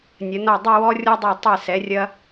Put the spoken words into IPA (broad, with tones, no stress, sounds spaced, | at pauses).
nʲ ɐ˩˧ n ɔ˧˩ dˤ ɐ˥˧ w ɔ˥ rʲ ɔ˥ dˤ ɨ˧˩ tˤ ɛ˧˩ s ɛ˩˧ rʲ ɐ˧